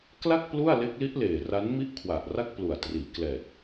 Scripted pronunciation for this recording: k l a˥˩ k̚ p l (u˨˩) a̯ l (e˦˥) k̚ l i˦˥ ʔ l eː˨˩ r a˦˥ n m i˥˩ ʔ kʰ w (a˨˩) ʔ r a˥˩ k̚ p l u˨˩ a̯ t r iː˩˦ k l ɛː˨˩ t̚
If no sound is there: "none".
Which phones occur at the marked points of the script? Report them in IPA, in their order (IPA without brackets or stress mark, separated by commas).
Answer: u˥˩, e˦˥, a˨˩